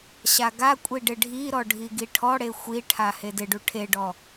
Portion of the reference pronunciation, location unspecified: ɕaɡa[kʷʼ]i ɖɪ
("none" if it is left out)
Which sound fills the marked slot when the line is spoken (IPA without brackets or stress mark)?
kʷʼ